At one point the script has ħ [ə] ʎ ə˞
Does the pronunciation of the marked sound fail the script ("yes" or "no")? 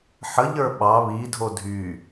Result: no